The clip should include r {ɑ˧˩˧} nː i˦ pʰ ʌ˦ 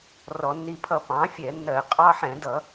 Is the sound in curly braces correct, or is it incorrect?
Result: incorrect